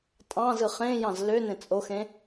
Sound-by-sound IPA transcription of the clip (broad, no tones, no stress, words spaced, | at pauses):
tʼɑ̃ zɯχẽjɑ̃z lø nẽt͡sʼoxẽ